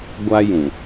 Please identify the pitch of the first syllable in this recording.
high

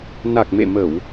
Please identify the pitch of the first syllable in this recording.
low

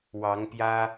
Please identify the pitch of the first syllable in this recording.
rising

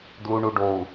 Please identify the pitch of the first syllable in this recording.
low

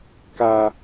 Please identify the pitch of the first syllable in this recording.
high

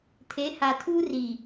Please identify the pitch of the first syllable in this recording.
rising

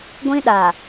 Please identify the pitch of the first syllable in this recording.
high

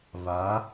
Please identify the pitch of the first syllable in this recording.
rising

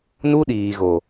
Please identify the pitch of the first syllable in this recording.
high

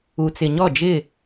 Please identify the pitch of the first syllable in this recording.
low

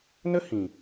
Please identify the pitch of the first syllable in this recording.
high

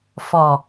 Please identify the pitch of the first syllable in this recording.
low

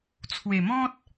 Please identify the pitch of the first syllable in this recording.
low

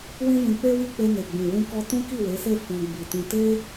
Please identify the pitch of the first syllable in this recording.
high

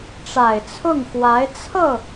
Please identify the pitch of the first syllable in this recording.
low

